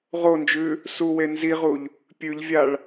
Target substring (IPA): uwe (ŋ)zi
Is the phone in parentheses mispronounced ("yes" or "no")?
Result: yes